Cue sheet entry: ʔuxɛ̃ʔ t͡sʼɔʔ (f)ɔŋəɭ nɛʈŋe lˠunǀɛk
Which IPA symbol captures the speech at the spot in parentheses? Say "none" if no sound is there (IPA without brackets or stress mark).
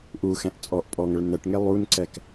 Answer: pʼ